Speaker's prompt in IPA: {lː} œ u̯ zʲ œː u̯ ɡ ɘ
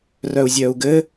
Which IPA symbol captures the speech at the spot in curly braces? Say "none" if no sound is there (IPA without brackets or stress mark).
r